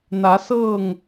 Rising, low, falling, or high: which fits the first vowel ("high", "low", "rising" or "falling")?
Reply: rising